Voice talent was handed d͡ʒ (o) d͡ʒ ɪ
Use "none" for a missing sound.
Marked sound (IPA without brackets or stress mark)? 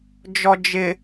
ɔ